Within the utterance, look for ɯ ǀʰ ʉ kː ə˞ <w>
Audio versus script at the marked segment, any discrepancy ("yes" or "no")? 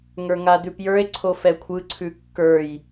yes